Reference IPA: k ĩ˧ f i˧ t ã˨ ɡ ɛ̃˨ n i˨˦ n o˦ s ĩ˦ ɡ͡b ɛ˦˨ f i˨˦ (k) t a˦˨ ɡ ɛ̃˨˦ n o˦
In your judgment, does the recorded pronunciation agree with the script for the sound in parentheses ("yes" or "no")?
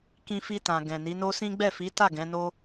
no